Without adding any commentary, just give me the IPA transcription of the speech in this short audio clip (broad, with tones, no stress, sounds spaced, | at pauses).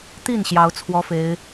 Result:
t̪ i˥˩ n ɕ j ɑ˧˥ ʊ̯ t͡sʰ w ɔ˥ f e˧˥ ɪ̯